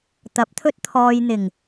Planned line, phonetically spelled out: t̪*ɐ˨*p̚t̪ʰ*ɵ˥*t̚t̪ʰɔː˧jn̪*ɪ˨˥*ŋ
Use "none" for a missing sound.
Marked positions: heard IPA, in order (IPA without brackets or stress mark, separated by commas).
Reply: ɐ˨˥, ɵ˥, ɪ˨˩